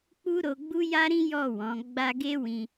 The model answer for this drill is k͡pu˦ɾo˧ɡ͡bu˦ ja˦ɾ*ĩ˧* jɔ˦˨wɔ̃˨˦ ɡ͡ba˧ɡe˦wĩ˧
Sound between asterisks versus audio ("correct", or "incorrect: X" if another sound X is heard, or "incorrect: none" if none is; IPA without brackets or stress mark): incorrect: ĩ˦